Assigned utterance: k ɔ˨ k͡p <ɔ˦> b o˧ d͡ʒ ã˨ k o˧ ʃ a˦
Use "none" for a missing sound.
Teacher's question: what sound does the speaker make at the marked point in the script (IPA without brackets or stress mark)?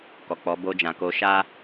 ɔ˨˦